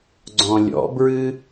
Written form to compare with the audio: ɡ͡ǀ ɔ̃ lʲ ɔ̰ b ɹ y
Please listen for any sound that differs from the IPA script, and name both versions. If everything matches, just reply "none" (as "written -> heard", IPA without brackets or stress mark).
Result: y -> ɨ